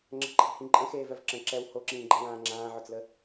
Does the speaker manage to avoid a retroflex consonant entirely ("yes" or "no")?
yes